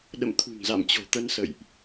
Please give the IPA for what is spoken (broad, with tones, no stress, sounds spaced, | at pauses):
ɗ ə̰˧˨ m t̪ʰ ṳ˨˩ ŋ z a̰˧˨ m t͡ɕ o̤˨˩ t̪ ə˧ n s ə̰˧˨ j ʔ